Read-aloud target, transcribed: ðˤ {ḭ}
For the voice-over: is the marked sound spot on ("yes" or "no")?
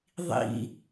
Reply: yes